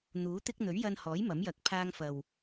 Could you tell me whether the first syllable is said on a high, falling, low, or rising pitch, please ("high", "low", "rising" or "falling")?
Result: rising